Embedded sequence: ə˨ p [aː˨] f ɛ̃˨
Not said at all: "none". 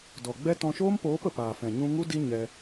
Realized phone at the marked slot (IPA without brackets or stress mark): aː˨